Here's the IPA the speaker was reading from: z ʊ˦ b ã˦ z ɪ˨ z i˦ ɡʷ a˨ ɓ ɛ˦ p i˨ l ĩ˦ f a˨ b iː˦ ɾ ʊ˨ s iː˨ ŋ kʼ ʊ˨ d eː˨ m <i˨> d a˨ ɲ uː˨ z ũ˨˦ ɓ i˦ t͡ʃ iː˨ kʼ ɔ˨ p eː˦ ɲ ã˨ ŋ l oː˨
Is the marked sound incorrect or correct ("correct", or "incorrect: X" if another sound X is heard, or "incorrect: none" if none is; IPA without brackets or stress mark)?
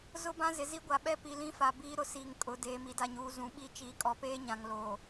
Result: correct